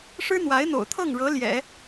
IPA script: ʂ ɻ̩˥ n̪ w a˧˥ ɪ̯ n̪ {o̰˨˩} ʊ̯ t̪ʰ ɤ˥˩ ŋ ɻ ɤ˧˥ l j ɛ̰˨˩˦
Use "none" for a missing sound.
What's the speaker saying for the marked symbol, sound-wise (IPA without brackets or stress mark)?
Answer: o̰˨˩